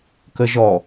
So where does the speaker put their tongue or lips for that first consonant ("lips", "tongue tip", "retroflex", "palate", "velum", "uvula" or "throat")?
velum